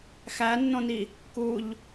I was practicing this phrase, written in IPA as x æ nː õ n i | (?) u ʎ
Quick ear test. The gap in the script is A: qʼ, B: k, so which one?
B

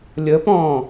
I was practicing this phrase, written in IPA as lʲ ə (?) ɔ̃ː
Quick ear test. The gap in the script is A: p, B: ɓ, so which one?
A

